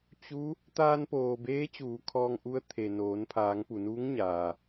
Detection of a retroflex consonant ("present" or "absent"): absent